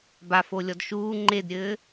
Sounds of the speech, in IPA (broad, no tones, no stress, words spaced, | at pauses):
bafolʲɔd ʃuː ŋ͡ǃedɾʲɘː